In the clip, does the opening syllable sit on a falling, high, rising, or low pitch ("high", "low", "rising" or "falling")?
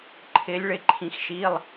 rising